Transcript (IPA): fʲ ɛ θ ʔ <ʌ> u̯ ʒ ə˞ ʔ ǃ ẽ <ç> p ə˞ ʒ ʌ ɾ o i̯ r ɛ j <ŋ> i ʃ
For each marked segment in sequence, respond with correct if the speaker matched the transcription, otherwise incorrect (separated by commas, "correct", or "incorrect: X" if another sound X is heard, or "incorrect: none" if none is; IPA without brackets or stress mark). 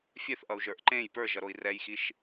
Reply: correct, incorrect: j, incorrect: x